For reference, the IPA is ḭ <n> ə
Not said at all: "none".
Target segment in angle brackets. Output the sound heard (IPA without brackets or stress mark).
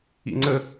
ŋ͡ǀ